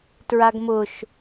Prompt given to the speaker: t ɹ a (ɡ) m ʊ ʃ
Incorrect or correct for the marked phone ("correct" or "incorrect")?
correct